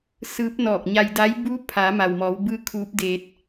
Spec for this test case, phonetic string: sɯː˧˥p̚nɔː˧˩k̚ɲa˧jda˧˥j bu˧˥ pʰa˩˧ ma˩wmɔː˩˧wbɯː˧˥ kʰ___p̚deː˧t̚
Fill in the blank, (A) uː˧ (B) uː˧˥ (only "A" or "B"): B